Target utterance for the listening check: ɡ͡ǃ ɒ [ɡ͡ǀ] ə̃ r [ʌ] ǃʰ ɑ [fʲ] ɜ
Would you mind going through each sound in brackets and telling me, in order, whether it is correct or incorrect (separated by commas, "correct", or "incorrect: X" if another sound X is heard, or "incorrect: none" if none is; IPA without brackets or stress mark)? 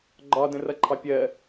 incorrect: d, correct, incorrect: pʲ